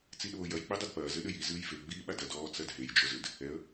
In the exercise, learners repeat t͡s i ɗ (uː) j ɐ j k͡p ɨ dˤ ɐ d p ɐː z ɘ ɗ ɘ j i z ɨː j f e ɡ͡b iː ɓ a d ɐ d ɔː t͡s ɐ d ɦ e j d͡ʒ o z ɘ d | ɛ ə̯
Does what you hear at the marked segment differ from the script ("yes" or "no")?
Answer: yes